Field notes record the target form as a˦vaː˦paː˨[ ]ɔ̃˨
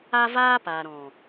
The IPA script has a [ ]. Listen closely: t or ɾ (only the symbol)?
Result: ɾ